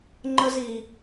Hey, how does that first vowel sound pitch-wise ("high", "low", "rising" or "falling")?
high